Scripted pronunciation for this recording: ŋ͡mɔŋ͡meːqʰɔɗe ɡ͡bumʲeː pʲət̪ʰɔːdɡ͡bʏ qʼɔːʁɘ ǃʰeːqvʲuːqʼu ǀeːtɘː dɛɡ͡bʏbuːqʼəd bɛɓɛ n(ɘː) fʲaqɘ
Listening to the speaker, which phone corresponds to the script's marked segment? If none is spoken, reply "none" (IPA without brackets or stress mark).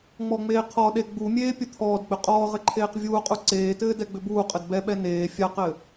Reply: eː